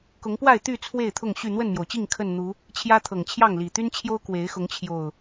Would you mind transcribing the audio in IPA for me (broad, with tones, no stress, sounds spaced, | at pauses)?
k ʊ˨˦ ŋ p w a˥˨ ɪ̯ t̪ y˥˨ t͡sʰ w e˥˨ ɪ̯ t̪ʰ ʊ˥˨ ŋ ɕ y˥˨ n̪ w ə˥˨ n m j o˩ ʊ̯ t͡ɕ i˥˨ ŋ kʰ ə˥˨ n n̪ u˨˦ | t͡ɕʰ j ä˦ t̪ʰ ɤ˨˩ ŋ t͡ɕʰ j ɑ˥˨ ŋ l i˨˩ t̪ y˦ n t͡ɕʰ j o˦ ʊ̯ k w e˨˦ ɪ̯ x ʊ˨˦ ŋ t͡ɕʰ j o˨˩ ʊ̯